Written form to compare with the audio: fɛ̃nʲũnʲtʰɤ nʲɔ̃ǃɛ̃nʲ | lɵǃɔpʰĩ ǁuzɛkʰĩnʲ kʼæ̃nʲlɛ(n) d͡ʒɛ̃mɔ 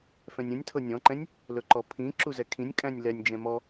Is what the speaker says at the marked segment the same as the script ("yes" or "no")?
no